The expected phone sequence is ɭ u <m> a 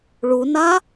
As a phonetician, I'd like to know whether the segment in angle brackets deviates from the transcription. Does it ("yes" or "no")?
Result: yes